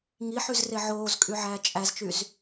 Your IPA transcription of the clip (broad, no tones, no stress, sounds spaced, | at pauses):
ŋ i ħ y z r e ʕ oː z kʼ y ʕ æː t͡ʃʼ æ z t͡ʃ y z